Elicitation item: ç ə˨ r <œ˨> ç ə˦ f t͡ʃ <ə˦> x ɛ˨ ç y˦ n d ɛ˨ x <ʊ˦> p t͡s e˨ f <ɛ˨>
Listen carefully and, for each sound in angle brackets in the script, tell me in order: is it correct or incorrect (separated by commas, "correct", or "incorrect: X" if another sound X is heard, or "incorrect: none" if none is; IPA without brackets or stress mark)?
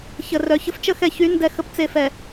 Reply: correct, correct, incorrect: ə˦, correct